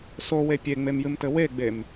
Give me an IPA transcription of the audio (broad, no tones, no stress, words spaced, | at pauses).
sowe pʲeŋ͡memjɨmtɘ weɡ͡bem